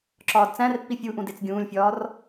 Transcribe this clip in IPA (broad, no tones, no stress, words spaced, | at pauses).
ǁɒːdt͡sæ̃rpːi fʲuʔũd et͡sɡʲũːlʲfʲɒːr